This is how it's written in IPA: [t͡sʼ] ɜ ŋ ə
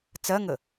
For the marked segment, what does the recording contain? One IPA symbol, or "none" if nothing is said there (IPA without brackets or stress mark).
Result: t͡s